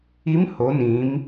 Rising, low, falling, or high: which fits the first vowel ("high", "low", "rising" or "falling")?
rising